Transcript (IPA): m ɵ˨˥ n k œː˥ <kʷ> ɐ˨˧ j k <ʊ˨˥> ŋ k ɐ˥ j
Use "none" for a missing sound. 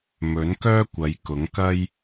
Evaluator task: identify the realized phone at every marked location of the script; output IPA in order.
kʷ, ʊ˨˥

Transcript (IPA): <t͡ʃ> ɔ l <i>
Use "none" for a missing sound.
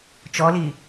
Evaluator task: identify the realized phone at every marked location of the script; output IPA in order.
t͡ʃ, i

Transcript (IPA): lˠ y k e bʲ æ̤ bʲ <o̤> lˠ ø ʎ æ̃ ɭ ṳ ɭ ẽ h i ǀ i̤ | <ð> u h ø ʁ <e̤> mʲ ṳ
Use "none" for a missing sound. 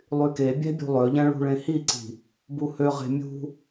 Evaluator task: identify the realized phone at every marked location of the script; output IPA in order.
ṳ, b, e̤

